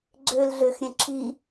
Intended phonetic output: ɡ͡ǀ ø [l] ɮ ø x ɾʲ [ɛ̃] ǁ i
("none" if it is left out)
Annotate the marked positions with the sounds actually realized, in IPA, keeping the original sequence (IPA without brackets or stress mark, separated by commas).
l, ɛ̃